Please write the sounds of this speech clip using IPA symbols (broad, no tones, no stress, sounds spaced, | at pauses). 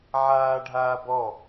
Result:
ʕ aː ɖʱ aː b ɔ